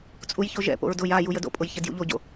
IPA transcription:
t͡sʼ u j ç o ʒ ɛ̰ p o̰ ɹ d ʊ j a j u j ə d o̰ pʼ ʊ j ç ɛ d j ṵ ʎ o ɟ o̰

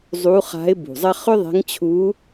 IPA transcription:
zˤ u˧˥ χ a̤˧˥ ɪ̯ b ṳ˨˩ zˤ ɐ˥ χ ʏ˥ ðˤ ɛ̤˧˥ ŋ t͡ɕʰ u˧˥

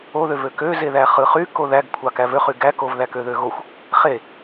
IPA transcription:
o ð ø v ø k ø z e ð æ χ ɯ χ y k o ð æ ɡ kʷʰ ɑ k æ v ø χ y ɡ æ k o v ð æ k ø ð ø ɣ o xʷ | χ e

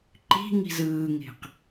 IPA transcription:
ǃ i̤ ŋ i̤ z ɯː ŋ e̤ q

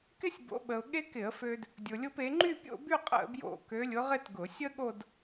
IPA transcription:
k ɪ˥ sʲ b o̰˧˥ ɓ ə˧ ʊ̯ ɠ e˥ k ɪ˧˩˧ ə̯ f ø˧ d | dʲ ʊ˧ lʲ ʊ˥ p e˧˥ ŋ͡ǃ y˥˧ pʲ o̰˥˧ b y˥˧ qʼ ə̰˥˧ b j o̰˥˧ k ø˧˥ lʲ ʊ˧˥ ʁ ɪ˥˧ t ɡ ʊ˧˩˧ sʲ ə˥ ɠ o˥˧ d

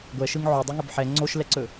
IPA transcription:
ɡʷ ɛ ʃ ɯ ŋ ʕ o dˤ u ŋ ɵ b ħ ɛ ŋ͡ǀ o ʃ l ɛ ǀ ɵ

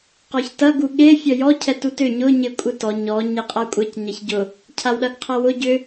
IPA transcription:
q ɔ ç t ɐ ɡ u ɠ e fʲ œ j ɔ cʰ ɛ t u t ʏ ɲ ʊ ɲ ɪ kʷʼ ɪ t ɔ ɲ ɔ ɲ e qʼ a kʷʼ ɛ c ɲ ɐ ç ɟ ʊ | cʰ a w ɗ ɐ ɡ qʰ a w ʊ ɟ ʏ

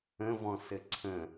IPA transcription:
ə̃ v ɔ̃ s ɘ ǀʰ ə̃

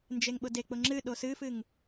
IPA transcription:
n d͡ʒ e ŋ ɓ ʊ d e k͡p ʊ ŋ͡ǁ ɨ ɗ o s ɨ f ɨ ŋ

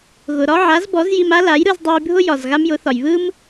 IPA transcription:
ɣ ʊ˩ ɾ ɒ˥ ʕ a˩˥ z b ɔ˩˥ z j i˧ m a˥ l a˩˥ j ɾ ɯ˧ z dˤ ɯ˧ j bʱ ʊ˥ j ɒ˩ z ɣ a˥ m j ʊ˩˥ θ ɒ˩ j β ɯ˥ m

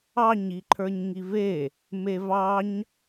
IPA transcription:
ɑ ɲ i ǃʰ ə˞ ɲ ŋ i v e | m e v ɑ ɲ

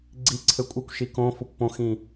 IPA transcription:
ɡ͡ǀ i ǀʰ ɘ kʷʼ ɘ kʷ ʃ i k õ f o kʷ p õ x ĩ

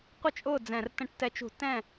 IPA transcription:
qʷ ə˥˨ t͡ʃʼ ʊː˥˨ d͡z ɛ̃˧˩˧ r t ə̃˧˩˧ ʈ t ɛ˨˦ t͡ʃ ṳ˧˩˧ t ɛ̃˥˨

